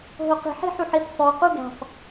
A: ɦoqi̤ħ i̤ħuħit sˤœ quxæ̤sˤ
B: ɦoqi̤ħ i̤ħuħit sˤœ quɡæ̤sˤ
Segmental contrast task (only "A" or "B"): B